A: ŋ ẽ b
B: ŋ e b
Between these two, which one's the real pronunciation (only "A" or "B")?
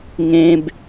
A